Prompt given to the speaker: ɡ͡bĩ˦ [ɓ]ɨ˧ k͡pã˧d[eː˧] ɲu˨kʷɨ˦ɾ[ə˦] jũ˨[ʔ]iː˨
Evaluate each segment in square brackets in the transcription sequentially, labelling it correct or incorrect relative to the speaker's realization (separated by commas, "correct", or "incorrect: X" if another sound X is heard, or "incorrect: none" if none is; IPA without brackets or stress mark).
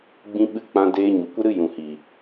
correct, correct, incorrect: ɨ˦, incorrect: h